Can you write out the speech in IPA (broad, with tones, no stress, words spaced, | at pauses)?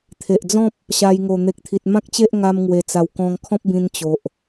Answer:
t̪ʰe˨ʔd͡zɔ̃˦p̚ | ɕa˧jŋo˨˩ n̪e˨k̚t̪ʰi˨t̚mã˦k̚t͡ɕe˦ʔ ŋa˦mŋwe˨˩t͡sa˨˩w kɔ̃˧ŋkʰɔ̃˦p̚bĩ˧n t͡ɕo˨ʔ